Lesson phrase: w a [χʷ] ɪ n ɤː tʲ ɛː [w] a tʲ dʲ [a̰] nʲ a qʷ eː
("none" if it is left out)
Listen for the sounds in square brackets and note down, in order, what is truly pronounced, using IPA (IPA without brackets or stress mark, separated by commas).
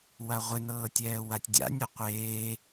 ʁʷ, w, a̰